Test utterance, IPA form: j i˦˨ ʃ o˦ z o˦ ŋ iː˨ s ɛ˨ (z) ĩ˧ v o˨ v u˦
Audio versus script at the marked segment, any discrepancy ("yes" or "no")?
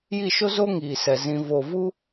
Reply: no